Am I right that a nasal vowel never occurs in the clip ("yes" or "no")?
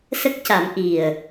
yes